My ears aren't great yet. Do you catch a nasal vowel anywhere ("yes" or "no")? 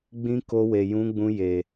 yes